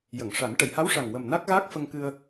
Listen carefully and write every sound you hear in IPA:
j ə˨˩˨ ŋ ʂ a˨˩˦ n ʈ ə˨˩˨ j h a˧˥ w ʂ a˨˩ ŋ w ə˨˩ m n a˦˥ k̚ ɣ aː˦˥ k̚ f ə˧ ŋ k ɨ˧ ə̯

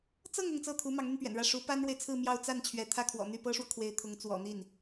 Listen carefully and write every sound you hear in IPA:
t͡s ɤ˥˧ ŋ ʊ˥˧ ŋ t͡s ɤ˥˩ t̪ʰ u˧˥ m ɑ˧˥ ŋ n̪ y˧ n p ɥ ɛ̰˨˩ n ɻ ä˥˩ ʂ u˧˥ p a˥ n ɻ w e˨ ɪ̯ t͡sʰ ɹ̩˥˧ m j ɑ˥˧ ʊ̯ t͡s a˥˩ n t͡ɕʰ ɥ ɛ˥ t̪ʰ ä˥˩ kʰ w ɔ̰˨˩ n̪ y˥˩ p ɤ˥ ʂ w ɔ˨ kʰ w e˧˥ ɪ̯ t̪ʰ ʊ˧˥ ŋ t͡s w ɔ̰˨˩ n̪ i˥˩ n

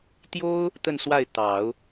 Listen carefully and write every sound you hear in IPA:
t̪ j o˥ ʊ̯ | t̪ ə˥˧ n s w a˥˩ ɪ̯ t̪ ɑ˨˩˦ ʊ̯

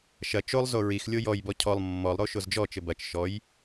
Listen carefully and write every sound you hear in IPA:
ʃ ɐ t͡ʃ o lˠ z o ɹ i x lʲ o j ɔ j b ɔ cʰ ɔ lˠ mː ɔ lˠ ɾ o ʃ o z d͡ʒ ɔ t͡ʃ ɘ b ɐ t͡ʃ ʃ ɔ j

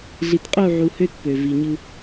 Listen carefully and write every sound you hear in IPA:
ɮ i˨ t qʼ u˦˨ ʕ u˨ h ø˦ t p ø˨ v i˨ ɲ ɯ˦

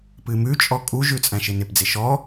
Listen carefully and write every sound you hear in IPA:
p ɨ m ʉ t͡ʃʼ ɔ kʼ u ʒ ʉ t͡sʼ æ̃ ʃ ɪ n ɪ p d͡z ɪ ʃ ɔ

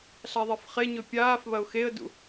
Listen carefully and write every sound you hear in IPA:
ɬ a ðˤ e f χ e ɲ ɵ pʲ aː f β ɐ ʊ̯ x e ə̯ d ṵ

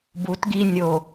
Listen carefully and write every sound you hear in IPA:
b u t ɡ i nʲ o

